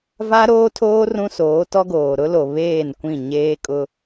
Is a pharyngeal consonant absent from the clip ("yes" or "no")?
yes